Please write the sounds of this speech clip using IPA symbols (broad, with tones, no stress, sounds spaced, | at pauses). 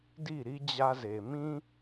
d i˦˨ ɾ i˦ d͡ʑ a˦ z e˨ m ĩ˦